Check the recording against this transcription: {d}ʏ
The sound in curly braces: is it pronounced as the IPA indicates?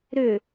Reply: no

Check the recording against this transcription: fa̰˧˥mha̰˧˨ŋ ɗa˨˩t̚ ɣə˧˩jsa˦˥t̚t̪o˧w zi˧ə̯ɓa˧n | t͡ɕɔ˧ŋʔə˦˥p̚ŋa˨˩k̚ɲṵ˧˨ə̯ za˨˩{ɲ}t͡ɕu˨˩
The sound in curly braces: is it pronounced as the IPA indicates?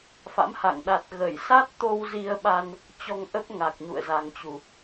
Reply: no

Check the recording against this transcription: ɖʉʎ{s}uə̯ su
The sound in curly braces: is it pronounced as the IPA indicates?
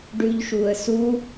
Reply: no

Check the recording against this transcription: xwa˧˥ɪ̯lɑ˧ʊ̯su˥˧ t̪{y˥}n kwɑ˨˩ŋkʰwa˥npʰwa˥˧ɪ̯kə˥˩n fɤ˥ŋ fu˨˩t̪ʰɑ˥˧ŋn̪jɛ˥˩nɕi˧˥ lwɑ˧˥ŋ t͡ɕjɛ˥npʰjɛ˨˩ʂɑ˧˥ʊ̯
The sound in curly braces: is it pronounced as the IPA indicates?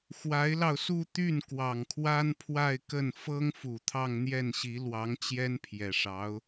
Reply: no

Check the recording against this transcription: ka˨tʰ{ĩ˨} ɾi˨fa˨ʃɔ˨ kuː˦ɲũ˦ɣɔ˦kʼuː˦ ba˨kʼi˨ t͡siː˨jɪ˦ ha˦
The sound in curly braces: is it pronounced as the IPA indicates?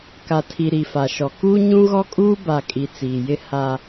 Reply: no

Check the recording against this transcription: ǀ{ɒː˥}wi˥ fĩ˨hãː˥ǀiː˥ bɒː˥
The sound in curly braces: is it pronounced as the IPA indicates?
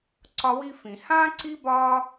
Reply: no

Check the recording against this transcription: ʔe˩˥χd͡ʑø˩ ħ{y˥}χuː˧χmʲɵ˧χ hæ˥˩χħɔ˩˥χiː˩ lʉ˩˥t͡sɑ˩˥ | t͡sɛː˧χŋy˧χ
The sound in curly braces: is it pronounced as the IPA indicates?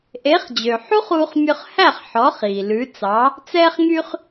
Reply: no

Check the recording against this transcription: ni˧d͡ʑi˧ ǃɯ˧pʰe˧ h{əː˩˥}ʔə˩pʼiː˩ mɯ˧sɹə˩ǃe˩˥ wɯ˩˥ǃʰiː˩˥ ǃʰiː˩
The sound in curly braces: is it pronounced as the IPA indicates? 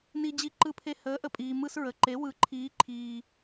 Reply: yes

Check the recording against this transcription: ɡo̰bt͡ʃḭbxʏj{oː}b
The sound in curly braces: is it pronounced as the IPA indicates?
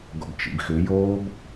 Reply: yes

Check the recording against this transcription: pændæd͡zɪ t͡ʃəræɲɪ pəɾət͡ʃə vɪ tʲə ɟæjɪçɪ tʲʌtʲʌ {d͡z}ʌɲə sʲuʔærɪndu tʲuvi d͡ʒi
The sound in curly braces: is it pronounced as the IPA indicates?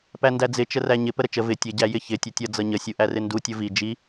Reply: yes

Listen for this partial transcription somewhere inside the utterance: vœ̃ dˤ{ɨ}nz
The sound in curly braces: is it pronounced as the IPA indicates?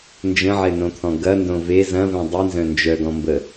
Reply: no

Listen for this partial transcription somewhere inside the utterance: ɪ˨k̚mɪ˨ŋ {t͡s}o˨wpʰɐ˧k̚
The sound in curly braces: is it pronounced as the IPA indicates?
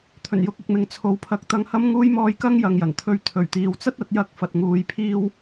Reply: no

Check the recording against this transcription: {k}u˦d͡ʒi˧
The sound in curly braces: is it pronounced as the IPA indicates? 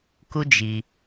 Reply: yes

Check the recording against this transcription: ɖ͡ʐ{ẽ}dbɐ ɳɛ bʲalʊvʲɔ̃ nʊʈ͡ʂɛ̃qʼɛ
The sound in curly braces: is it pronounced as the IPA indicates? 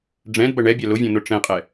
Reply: no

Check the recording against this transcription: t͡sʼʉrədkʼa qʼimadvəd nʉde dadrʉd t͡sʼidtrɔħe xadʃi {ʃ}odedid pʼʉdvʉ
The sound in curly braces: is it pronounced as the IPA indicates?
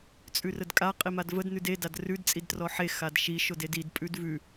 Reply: yes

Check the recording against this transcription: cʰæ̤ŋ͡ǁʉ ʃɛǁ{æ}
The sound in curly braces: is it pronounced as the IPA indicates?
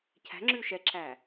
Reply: yes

